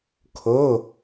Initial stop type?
aspirated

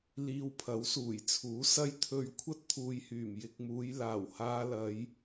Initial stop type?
aspirated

